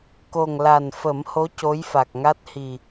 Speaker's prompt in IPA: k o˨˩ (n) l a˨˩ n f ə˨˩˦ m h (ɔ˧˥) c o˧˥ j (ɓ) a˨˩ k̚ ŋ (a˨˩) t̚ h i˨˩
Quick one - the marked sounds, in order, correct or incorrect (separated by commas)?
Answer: incorrect, incorrect, incorrect, incorrect